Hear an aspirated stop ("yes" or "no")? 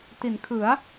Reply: yes